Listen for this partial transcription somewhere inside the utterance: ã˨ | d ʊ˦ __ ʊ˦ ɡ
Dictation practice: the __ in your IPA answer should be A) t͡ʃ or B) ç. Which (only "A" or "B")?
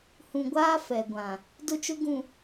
A